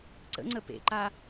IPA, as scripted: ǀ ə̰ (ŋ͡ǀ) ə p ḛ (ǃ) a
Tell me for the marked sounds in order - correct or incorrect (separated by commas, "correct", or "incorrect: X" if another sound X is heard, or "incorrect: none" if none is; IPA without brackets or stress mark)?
correct, correct